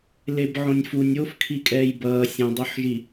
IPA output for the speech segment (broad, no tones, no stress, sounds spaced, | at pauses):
l e b ʕ õ nʲ f u nʲ o f kʰ i kʼ ɛː j b ʌː sʲ õ dˤ o ħ ʒ i